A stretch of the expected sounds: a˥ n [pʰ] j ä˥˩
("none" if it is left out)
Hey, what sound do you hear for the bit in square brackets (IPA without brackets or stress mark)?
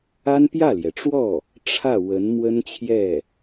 p